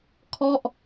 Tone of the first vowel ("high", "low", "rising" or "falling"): falling